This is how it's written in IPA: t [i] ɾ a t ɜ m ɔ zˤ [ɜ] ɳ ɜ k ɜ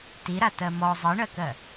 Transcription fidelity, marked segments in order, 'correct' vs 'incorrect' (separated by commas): correct, correct